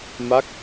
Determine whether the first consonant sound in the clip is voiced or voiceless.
voiced